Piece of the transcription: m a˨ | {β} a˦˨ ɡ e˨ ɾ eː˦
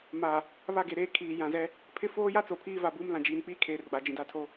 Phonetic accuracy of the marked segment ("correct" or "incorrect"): correct